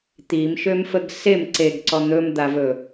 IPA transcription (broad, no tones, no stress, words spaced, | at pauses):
t̪imʃømfəɡ sem ǀeɡ ǀɔn̪ɵmd̪avɵ